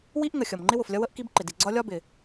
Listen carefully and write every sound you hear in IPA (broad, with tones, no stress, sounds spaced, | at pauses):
w i˥ ʔ ŋ ə˩ xʲ ʌ˩ m ŋ͡ǃ ɪ˥ w ʊ˩ f lʲ ʌ˥ w ə˥ ʔ k i˥ b ǃ ɪ˩ d i˩ ɡ͡ǀ ɒ˥ lʲ ɒ˥ b ɪ˩